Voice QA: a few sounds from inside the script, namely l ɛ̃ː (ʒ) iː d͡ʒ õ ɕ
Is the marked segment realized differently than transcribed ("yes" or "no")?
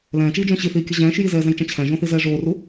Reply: yes